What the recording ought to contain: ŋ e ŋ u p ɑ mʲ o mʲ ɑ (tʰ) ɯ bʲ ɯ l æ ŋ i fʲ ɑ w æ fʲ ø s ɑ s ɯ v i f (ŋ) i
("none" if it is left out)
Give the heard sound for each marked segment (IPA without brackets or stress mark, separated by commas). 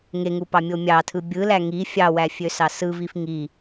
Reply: tʰ, ŋ